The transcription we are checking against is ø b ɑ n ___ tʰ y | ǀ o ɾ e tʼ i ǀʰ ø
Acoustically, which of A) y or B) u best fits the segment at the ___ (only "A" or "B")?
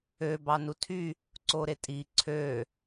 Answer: B